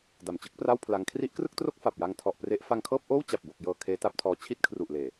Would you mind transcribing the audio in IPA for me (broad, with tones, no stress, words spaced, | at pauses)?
da˨˩mt͡ɕɯ˦˥k̚pra˥˩w pʰla˦˥ŋ kʰri˦˥ʔkrɯ˥˩k̚tro˥˩k̚ fa˨˩p̚ja˧ŋtʰɔ˨˩ʔpre˦˥ʔ fa˧ŋkʰɤː˥˩p̚ʔoː˥˩w t͡ɕa˨˩p̚bo˨˩k̚jɤː˨˩ kʰeː˦˥ta˦˥p̚tʰɔː˧ t͡ɕʰi˥˩t̚kʰru˨˩ʔleː˨˩